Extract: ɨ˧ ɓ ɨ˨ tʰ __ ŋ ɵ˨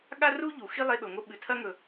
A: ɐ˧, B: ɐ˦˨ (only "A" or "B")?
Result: A